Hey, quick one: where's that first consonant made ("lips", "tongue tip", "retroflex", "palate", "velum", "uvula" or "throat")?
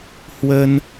throat